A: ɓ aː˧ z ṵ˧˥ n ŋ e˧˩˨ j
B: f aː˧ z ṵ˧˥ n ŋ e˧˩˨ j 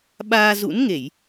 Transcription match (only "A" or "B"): A